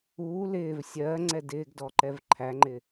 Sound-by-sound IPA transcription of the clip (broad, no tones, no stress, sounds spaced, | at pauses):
uː l ɪː v sʲ ɜː ŋ͡ǀ ɛ d ɪː ɡ d ɔ ǃ ɛ v ǃʰ æ ŋ͡ǃ ɪː